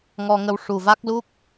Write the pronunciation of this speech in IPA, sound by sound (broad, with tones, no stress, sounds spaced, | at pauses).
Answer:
ŋ ɔ˧ ŋ ə˧ w ʂ u˨˩ v a˦˥ k̚ l u˦˥ k̚